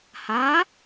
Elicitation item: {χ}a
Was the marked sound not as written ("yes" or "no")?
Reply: yes